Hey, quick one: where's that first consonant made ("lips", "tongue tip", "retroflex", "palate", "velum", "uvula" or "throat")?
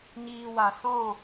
palate